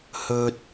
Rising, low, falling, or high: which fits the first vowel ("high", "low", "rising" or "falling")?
low